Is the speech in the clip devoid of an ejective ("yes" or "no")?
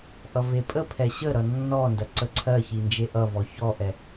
no